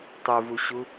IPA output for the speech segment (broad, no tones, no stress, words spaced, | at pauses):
tˤuvuɕu